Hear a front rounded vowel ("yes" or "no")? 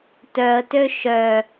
yes